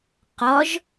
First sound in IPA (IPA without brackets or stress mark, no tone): q